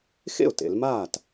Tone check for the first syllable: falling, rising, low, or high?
falling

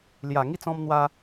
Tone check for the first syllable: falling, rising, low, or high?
low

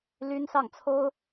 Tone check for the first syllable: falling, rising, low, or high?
high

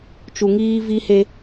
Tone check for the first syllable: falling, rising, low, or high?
low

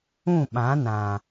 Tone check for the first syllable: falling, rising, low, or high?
falling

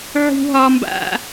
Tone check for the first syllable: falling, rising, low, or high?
high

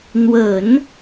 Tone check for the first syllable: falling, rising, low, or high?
low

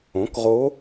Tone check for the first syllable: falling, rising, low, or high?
rising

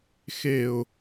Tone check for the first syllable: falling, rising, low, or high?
low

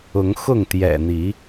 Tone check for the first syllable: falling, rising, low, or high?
rising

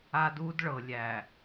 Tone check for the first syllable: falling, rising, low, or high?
high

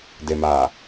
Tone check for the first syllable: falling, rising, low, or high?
low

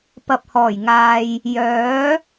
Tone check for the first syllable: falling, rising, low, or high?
low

